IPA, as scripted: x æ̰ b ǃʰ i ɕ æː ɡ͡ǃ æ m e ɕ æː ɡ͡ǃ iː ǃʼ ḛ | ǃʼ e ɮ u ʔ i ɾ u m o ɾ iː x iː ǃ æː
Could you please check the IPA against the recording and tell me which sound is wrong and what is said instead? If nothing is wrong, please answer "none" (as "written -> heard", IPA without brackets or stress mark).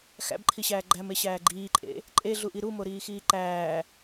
none